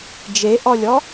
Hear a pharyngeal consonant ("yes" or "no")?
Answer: no